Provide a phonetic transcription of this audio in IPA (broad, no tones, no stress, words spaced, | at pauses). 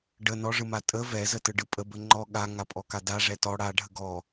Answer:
ɖə nɔʐɯma tʼə vɛzətɯɖɯ pʼəbə ŋ͡ǃɔ ɠaŋapʼɔka daʐɛ tɔ ɽaɖʱə ɡɔ